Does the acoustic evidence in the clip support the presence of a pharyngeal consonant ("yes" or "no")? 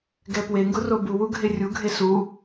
no